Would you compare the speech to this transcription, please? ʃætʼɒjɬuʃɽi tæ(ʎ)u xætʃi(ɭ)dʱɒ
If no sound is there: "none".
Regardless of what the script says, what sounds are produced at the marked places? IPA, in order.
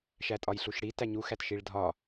ɲ, ɭ

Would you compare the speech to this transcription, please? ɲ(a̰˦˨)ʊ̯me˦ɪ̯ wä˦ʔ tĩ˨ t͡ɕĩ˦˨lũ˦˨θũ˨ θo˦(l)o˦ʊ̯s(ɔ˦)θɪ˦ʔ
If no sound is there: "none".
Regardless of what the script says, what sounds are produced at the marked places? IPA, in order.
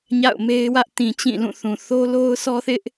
a̰˦˨, l, ɔ˦

